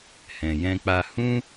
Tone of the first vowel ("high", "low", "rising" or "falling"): low